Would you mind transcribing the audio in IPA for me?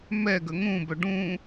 m ɛ ɡ ə ŋ ũ b œ ɖ ũ

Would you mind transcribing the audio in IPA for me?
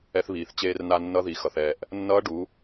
ɛ˧ θ β iː˩ θ t͡ɕ eː˧ r n a˧ nː ʌ˧˥ ð i˩ x ʌ˩ θ ɛː˩ ʔ | nː ʌː˧˥ ɖ u˩˧

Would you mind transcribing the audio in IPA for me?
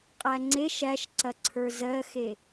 qʼ æ ŋ͡ǀ e ʃ æ ʃ ǀ ɐ ǀʰ ə˞ z ɜ x e

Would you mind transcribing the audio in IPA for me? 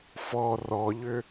f ɔ r ɔ ʎ ʏ

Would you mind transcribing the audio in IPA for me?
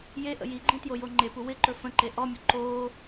j e ʔ ə̰ j i ɡ͡ǃ ĩ t j o j o ŋ͡ǃ e p u w ɪ ǃ ɵ f ə̃ ǃ e ʔ ɔ mʲ ɵ ǃ oː

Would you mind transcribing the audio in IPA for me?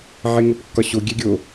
ʕ e ŋ o p kː ɒ ɕ o ɡʲ æ ɡʲ o

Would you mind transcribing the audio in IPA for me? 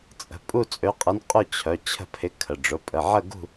t͡sʼ ə̤˩˧˩ pʼ u˥˧ t͡sʼ ø˧˥ qʼ ə˧˥ n qʼ ʊ˥˧ t͡ɕʰ œ˩˧˩ t͡ɕʰ ə̤˥˧ pʰ ɪ˧˥ kʰ ə˩˧˩ ɖ͡ʐ ʊ˩˧˩ pʼ ə˩˧˩ ʕ ə˥˧ ɡ ṳ˥˧

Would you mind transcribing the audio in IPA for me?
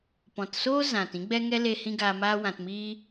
p ɔ̃˨ t s oː˦ z ã˨ t ĩ˦ ɡ͡b ɛ˦ ŋ ɛ˦ l e˧ h ĩ˦ ɡ aː˧ m aː˦ w ã˧ t m iː˦

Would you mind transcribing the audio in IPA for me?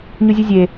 ɲ u zʲ ɔ zʲ e

